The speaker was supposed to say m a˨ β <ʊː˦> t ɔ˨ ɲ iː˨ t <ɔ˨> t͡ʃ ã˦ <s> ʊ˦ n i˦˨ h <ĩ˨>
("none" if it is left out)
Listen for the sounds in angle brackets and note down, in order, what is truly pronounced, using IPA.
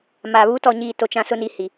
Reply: uː˦, o˨, s, i˨

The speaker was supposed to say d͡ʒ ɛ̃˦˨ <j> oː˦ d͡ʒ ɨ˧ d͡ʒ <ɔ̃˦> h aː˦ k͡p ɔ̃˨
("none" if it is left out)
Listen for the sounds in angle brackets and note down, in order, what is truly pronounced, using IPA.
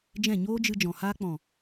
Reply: ɲ, ɔ̃˨

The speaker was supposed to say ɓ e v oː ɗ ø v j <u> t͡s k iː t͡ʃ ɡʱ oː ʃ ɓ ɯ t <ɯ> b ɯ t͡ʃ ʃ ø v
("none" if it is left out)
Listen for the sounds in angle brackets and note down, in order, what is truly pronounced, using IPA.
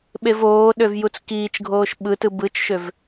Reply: u, ɯ

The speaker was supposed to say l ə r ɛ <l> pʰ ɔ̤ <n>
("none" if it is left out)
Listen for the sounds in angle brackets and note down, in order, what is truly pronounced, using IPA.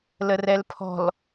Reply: l, l

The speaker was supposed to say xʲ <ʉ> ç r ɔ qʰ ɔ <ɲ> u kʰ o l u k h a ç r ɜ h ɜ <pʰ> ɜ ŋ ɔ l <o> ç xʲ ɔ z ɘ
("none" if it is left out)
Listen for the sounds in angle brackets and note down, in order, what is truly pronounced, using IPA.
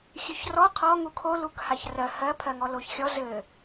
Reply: ʉ, ŋ, pʰ, o

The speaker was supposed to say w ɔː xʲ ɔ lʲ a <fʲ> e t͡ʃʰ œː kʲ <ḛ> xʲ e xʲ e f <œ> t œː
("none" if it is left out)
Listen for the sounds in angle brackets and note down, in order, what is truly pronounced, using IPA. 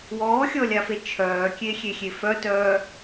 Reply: f, e, œ

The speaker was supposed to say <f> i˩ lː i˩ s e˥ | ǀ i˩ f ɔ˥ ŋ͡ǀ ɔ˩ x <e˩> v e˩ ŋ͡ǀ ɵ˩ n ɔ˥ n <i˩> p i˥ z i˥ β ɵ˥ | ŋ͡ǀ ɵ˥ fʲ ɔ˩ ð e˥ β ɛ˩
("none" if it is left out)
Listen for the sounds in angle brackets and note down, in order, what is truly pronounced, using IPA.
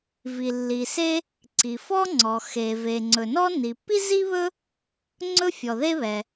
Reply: v, e˩, i˩

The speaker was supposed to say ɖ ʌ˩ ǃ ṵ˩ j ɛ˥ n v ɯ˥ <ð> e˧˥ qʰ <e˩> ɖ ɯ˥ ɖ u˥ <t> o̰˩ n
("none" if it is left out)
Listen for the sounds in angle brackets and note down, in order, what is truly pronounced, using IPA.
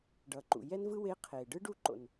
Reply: w, e˩, ǃ

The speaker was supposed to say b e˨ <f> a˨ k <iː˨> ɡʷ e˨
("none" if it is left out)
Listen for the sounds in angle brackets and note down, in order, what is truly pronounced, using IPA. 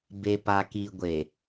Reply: p, i˨

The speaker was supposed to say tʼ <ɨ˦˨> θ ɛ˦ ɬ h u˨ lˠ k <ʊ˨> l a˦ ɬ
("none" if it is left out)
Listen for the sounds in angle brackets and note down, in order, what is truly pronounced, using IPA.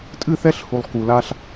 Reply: ɨ˦˨, u˨

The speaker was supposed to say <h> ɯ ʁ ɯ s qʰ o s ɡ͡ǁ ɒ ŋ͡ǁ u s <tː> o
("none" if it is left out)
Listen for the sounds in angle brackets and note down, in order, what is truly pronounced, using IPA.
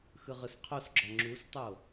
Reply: x, tˤ

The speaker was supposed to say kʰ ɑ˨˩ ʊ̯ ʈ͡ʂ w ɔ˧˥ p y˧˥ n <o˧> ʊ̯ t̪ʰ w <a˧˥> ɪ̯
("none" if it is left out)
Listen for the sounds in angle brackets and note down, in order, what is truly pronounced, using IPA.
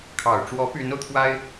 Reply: o˧, a˥

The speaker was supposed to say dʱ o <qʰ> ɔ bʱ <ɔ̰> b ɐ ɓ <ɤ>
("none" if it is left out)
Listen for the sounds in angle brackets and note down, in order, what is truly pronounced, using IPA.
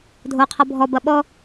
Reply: qʰ, ɔ, ɔ

